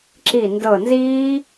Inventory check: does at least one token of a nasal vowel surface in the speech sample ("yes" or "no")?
no